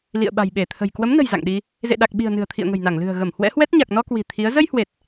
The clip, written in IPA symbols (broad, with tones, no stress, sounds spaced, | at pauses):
l ḭ˧˨ ə̯ ɓ a̤˨˩ j ɓ e˧˩ t̪ʰ ə̤˨˩ j k w ə˨˦ m n ə̤˨˩ j z a̰˧˨ ŋ ɗ i˧ | z ḛ˧˨ ɗ a˨˩ k̚ ɓ i̤˨˩ ə̯ n ɨ̤˨˩ ə̯ t̪ʰ ḭ˧˨ ə̯ ŋ ə̤˨˩ j n a˧˩ ŋ l ɨ̤˨˩ ə̯ ɣ ə˧˩ m h w ɛ̰˧˥ h w ɛ˦˥ t̚ ɲ a˨˩ k̚ n ɔ˧ k w i̤˨˩ t̪ʰ i˨˦ ə̯ z ə˧ j h w e˨˩ t̚